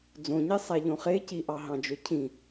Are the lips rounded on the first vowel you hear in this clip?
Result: yes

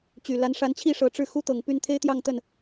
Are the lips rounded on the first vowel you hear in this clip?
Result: yes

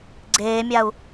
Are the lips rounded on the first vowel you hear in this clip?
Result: no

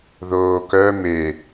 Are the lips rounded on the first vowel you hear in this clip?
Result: yes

